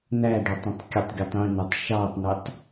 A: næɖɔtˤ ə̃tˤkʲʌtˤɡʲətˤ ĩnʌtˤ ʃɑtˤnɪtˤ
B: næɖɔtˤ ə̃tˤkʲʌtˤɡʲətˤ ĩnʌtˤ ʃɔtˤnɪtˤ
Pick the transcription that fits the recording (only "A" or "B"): A